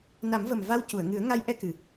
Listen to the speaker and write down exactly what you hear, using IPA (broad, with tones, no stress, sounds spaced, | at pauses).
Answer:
n a˨˩˦ m v ə˨˩ m v a˧ w c u˨˩˨ ə̯ ŋ ɨ˨˩˦ ə̯ ŋ a˧˥ j ʔ ɛ˧ k ɨ˨˩